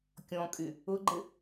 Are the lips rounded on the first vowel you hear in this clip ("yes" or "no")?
yes